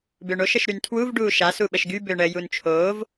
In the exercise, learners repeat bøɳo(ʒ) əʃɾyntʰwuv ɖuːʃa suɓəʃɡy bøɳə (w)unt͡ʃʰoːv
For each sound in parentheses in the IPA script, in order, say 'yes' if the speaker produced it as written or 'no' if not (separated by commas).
no, no